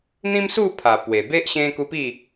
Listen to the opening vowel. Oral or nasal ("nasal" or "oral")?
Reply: nasal